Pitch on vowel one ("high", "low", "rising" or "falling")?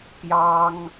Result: high